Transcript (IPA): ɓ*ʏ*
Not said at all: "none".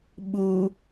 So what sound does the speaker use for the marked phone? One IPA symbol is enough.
u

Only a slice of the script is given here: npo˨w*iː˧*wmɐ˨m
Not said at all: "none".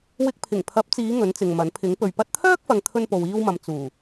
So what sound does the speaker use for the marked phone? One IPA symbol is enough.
iː˧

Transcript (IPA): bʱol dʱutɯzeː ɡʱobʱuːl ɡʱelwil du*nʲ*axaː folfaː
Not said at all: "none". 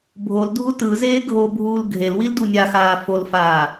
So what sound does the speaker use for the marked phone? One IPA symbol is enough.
nʲ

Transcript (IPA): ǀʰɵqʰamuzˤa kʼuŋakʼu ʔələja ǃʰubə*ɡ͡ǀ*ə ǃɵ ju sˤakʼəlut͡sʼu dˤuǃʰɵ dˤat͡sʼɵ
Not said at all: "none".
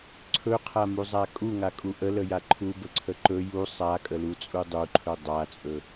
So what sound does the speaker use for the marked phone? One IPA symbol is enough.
ǀʰ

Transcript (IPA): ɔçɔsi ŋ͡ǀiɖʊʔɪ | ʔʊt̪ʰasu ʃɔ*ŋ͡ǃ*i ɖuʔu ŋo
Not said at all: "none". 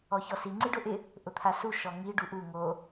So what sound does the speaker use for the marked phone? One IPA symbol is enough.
ŋ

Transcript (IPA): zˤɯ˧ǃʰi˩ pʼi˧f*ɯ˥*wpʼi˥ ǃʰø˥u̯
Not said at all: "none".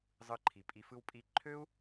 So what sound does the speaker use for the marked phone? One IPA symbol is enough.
ɯ˥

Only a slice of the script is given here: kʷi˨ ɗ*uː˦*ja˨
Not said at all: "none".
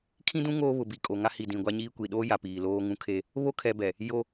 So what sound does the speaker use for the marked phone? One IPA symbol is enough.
oː˦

